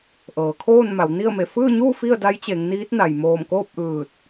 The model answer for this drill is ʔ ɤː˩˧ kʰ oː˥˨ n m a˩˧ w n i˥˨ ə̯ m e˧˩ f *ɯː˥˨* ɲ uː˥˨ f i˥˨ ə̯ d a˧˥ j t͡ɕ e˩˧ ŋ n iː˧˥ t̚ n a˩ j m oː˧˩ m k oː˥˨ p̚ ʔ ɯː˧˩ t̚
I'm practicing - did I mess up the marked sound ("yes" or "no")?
no